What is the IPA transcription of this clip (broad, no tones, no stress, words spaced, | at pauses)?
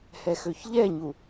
hɛxøçʎɛɲu